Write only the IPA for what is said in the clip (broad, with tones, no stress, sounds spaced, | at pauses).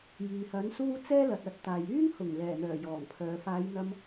j iː˨ h ɐ˨˥ n s uː˥ t͡s ɛː˥ l ɐ˨ t̚ ɐ˧ t̚ t̪ aː˨ j yː˥ ŋ h ʊ˨˩ ŋ l ɛː˨˩ n̪ œː˨˩ j ɔː˨˩ ŋ pʰ œː˨ f aː˨˧ j n̪ ɐ˧ m